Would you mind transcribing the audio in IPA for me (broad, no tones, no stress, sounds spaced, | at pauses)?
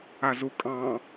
a z u kʼ ɑ̃